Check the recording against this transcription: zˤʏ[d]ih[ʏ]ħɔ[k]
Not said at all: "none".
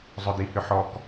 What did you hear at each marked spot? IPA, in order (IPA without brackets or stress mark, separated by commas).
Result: d, ʏ, k